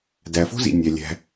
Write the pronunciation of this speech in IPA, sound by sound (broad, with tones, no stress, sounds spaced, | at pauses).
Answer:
d æ˩ f o̤˥ z ḭ˩ nʲ æ˩ lʲ æ̤˩